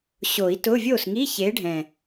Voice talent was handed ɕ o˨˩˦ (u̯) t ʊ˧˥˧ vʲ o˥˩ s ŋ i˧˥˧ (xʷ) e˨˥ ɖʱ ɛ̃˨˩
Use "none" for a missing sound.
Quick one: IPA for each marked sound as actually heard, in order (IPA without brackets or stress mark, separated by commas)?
i̯, ç